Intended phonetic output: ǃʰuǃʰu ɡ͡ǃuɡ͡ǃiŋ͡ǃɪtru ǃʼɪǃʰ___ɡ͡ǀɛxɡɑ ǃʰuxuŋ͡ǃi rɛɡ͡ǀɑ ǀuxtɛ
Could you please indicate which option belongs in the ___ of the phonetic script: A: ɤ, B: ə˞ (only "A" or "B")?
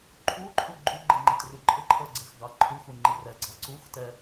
B